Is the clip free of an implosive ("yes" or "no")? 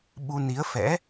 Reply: no